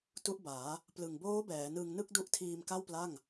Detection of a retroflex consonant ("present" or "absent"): absent